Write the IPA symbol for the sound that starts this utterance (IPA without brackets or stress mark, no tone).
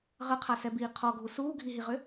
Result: ʁ